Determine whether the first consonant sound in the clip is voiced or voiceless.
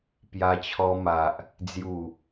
voiceless